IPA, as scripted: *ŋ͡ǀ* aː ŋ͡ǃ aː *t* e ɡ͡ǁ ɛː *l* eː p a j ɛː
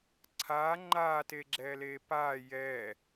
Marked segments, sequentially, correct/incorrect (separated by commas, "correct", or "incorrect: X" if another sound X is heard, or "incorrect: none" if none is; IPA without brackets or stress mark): incorrect: ǀʰ, correct, correct